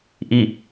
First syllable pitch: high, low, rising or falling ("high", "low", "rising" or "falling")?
falling